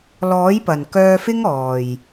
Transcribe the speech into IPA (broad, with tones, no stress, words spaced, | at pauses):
lɔː˨˥jpɐ˨˩n kœː˧fɪ˥ŋ ɔː˨˩j